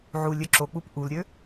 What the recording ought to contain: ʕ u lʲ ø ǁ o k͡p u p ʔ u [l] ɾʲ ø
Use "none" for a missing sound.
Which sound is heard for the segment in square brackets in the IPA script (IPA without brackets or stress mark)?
l